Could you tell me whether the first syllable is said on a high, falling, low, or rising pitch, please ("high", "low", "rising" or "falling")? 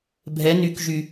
rising